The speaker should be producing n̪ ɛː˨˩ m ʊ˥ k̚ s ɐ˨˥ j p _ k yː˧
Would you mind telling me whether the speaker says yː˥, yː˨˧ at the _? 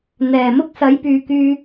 yː˨˧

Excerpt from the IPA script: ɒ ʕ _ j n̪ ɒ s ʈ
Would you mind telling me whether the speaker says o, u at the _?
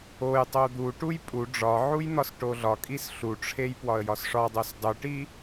u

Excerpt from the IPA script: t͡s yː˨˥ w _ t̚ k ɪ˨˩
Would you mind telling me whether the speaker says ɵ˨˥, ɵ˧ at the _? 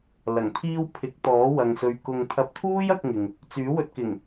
ɵ˧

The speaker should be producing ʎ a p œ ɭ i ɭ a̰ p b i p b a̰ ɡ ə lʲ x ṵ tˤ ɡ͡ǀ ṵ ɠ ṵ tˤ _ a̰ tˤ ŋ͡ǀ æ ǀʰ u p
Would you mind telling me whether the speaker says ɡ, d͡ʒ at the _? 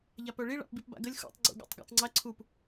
ɡ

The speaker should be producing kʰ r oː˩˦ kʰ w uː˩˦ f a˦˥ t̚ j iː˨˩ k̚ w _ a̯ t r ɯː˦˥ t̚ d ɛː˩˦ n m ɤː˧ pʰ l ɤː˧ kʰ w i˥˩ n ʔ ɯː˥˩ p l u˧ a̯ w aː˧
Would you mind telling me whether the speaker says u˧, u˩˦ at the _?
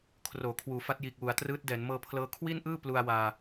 u˩˦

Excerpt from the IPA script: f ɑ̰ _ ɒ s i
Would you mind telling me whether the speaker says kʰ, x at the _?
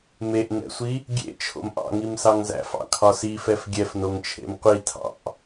kʰ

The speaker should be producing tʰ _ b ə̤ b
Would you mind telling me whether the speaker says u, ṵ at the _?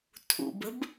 ṵ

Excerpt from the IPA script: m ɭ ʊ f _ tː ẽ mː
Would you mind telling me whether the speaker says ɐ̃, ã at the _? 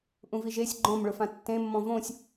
ã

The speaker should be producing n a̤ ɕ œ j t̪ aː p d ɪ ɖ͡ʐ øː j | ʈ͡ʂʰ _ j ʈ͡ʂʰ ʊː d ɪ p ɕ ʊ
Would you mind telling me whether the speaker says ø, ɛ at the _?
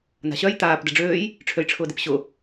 ø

